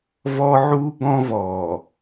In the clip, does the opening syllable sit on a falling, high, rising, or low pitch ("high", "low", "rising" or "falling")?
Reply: high